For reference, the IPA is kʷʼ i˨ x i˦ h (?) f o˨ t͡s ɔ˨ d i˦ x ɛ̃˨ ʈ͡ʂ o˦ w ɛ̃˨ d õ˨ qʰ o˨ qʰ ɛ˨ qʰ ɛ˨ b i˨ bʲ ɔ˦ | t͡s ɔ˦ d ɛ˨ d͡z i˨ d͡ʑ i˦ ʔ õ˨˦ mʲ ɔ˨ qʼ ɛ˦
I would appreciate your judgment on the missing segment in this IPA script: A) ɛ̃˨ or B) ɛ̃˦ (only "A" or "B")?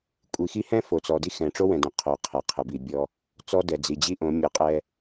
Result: B